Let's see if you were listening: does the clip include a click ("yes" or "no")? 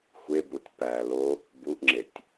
yes